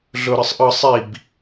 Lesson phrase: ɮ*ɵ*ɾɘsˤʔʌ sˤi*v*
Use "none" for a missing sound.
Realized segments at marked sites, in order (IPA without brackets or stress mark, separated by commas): ɵ, b